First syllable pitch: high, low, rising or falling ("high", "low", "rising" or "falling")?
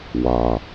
low